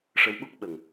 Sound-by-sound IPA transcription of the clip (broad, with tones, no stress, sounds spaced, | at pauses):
ʂ ə˧˥ w ɓ u˦˥ k̚ ɓ ə˨˩ ŋ